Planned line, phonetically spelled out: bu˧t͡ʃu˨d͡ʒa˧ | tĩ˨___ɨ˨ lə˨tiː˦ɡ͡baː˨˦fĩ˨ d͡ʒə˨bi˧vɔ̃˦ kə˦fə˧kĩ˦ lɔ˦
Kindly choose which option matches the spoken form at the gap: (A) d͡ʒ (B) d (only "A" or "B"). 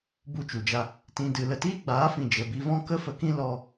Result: B